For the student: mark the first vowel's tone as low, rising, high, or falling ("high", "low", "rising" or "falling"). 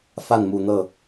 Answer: falling